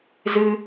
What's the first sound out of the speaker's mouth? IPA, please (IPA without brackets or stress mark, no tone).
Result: z